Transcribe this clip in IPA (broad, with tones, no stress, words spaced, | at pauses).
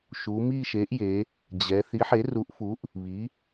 ʃu˩˧mi˦˨ʃe˩˥ʔje˩˧ | d͡ʑɛ˩˧ θi˩˥ħe˩˥ru˩˥ʔfu˩˥ʔ | βi˩˧